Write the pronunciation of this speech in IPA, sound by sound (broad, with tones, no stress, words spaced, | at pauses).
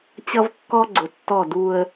t͡ɕʌ˦vkːɔ˦ ɡ͡ǀʊ˨tːɔ˦˨du˦ə̯